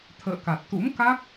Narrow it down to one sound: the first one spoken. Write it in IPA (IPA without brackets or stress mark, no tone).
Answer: t̪ʰ